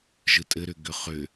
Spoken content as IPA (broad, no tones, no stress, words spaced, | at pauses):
ʒɯtʼɘɾʏ ɡʏχʏ